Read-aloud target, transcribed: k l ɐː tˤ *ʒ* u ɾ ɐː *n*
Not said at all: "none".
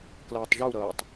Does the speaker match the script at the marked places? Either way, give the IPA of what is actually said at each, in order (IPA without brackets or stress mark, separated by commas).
ʒ, tˤ